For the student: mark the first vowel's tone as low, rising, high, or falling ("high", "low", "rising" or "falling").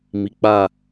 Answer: low